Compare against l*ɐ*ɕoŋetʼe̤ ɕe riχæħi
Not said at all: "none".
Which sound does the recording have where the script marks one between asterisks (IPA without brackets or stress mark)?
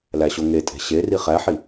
æ